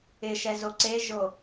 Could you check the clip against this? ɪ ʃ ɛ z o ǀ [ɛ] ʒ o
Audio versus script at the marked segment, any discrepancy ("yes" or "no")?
yes